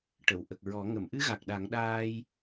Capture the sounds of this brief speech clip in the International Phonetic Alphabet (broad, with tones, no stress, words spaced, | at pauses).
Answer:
ʈə˨˩˨wʔə˨˩k̚ɹɔ˨˩˦ ŋə˨˩˨mʔɨ˧˥ɣa˨˩k̚ ɗa˨˩˦ŋɗaː˧j